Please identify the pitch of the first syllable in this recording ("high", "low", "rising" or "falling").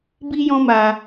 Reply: high